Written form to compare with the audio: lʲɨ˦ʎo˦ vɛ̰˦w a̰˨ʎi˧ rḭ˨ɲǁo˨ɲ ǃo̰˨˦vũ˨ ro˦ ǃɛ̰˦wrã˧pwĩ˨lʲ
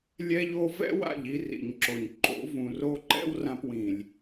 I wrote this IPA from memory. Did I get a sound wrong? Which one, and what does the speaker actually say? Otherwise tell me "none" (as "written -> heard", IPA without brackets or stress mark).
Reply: ɨ˦ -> ɛ˦